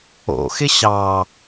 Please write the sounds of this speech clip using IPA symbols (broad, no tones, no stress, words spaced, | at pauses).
o̰xɪ ɕɑ